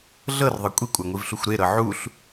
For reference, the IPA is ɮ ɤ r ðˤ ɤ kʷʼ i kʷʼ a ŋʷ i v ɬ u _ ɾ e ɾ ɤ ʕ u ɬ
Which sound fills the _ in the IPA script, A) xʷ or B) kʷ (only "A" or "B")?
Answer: A